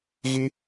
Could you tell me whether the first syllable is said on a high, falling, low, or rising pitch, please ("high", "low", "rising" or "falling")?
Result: high